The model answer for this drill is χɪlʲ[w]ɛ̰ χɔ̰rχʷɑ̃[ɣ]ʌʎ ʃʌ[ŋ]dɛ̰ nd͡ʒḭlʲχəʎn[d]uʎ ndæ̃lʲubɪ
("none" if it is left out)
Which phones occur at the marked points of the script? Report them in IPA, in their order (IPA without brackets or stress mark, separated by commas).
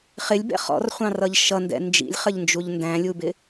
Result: b, r, n, d͡ʒ